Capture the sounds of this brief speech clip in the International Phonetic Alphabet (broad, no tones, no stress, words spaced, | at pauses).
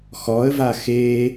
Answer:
xɔə̯va xe